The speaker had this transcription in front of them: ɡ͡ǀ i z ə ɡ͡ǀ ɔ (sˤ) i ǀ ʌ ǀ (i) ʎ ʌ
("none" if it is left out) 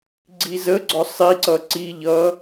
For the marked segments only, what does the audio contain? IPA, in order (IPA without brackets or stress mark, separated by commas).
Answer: sˤ, i